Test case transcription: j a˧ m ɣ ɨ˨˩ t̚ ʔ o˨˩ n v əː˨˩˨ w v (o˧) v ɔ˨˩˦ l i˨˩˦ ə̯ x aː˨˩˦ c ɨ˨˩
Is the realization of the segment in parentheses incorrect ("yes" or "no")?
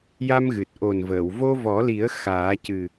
no